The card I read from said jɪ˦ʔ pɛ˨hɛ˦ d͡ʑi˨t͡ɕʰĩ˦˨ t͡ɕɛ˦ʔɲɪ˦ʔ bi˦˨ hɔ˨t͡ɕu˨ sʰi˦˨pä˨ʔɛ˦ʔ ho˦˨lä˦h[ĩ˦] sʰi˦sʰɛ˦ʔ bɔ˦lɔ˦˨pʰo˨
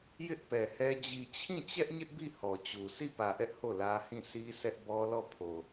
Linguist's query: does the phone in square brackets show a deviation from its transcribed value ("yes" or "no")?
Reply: yes